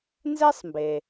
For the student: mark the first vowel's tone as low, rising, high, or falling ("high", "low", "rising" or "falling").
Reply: high